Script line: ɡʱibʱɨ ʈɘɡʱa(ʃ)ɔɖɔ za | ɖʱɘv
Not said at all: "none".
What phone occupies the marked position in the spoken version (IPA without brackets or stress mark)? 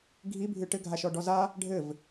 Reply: ʃ